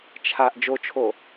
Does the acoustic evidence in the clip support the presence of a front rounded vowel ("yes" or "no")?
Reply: no